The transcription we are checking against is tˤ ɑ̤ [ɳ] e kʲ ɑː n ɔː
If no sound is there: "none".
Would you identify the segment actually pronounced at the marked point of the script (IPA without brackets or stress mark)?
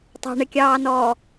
ɳ